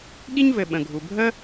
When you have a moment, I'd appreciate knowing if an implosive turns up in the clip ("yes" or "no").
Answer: yes